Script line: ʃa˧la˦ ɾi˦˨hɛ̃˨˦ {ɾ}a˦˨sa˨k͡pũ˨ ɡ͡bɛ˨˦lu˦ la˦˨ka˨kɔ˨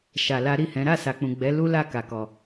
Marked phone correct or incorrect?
correct